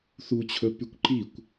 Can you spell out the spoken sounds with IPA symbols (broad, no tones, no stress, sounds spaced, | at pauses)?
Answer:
θ u t͡ɕʰ ɵ p y kʷ ǃ i kʷ